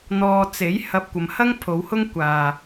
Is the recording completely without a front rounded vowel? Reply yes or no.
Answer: yes